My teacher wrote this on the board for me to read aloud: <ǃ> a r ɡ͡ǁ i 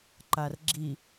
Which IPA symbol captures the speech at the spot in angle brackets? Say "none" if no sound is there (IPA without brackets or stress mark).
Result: ǃ